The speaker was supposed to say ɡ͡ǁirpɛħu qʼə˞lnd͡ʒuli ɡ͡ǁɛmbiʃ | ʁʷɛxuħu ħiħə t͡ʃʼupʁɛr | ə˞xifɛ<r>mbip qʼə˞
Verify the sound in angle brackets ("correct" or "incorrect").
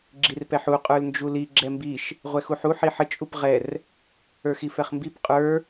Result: incorrect